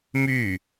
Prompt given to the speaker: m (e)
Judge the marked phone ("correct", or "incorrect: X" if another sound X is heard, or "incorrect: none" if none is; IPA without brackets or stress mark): incorrect: y